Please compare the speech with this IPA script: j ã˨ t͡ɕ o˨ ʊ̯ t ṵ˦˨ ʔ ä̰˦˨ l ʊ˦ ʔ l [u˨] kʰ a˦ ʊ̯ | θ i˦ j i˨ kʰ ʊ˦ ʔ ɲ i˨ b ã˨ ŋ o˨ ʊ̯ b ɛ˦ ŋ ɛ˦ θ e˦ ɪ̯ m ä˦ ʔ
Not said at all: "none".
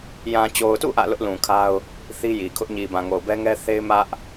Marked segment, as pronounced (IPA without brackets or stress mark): ũ˨